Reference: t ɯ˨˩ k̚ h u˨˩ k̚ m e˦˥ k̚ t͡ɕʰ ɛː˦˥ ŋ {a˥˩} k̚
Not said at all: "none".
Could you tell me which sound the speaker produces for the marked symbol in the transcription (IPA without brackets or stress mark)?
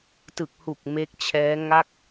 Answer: a˥˩